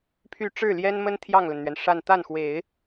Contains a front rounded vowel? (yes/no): yes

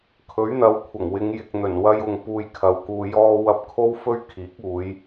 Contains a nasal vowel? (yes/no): no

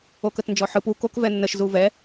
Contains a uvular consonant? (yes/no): no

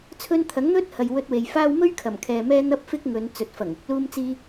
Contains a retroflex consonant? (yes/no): no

